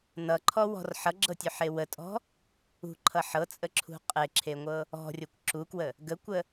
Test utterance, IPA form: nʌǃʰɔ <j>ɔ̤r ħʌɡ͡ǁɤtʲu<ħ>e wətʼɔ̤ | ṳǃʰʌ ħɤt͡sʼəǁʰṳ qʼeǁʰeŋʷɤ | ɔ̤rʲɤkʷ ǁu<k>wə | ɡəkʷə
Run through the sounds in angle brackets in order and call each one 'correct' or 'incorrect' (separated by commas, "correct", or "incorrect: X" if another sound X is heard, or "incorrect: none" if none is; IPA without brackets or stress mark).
incorrect: w, correct, correct